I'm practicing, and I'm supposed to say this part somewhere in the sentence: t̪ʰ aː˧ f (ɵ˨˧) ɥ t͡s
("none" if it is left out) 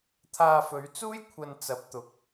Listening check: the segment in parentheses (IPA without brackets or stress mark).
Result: ɵ˨˧